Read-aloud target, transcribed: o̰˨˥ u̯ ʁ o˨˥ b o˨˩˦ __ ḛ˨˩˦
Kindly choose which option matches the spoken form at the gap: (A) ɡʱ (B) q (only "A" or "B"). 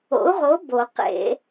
B